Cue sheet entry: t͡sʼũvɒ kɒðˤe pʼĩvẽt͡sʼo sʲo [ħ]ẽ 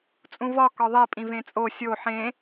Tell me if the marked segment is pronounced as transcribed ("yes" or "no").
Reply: yes